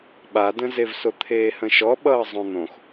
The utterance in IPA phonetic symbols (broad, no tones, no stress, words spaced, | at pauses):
ɓadə̃zevso t̪ʰeːhə̃ʃɔɓʌː zˤõn̪õx